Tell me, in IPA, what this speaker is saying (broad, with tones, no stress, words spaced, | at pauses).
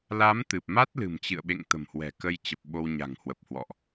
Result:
la˨˦m t̪ɨ˨˩p̚ma˦˥t̚lɨ̤˨˩m t͡ɕɨ̰˧˨ə̯ɓḛ˧˨ŋ t̪ə̤˨˩mhwɛ̤˨˩kə˧j t͡ɕə˨˩p̚ ɓo˧wɲa̤˨˩ŋhwə˨˩p̚hwɔ̰˧˨ʔ